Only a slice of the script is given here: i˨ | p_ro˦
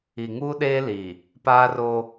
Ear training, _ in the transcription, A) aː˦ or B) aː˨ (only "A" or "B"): A